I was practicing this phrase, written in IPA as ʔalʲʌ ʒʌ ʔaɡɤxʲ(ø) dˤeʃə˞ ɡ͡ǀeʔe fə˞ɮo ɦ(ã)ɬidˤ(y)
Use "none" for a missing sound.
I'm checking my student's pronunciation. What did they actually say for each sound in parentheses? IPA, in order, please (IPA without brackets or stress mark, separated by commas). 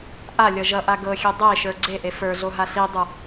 ø, a, u